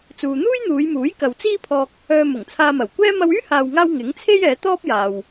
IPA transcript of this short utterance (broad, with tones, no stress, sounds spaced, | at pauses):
t͡s uː˨ n̪ uː˥ j n̪ uː˨˧ j m uː˨˥ j k ɐ˨ w t͡s iː˥ pʰ ɔː˧ k̚ | œː˧ m ʊ˨˩ ŋ t͡sʰ aː˧ m ɐ˨˩ w kʷ ɛː˥ m ɐ˧ w yː˥ h aː˨ w ŋ aː˧ w ŋ ɪ˨˥ ŋ t͡sʰ e˥ j ɛː˨˧ t̪ ɔː˥ p̚ j aː˨ w